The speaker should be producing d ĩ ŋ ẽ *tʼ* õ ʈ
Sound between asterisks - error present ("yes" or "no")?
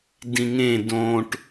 yes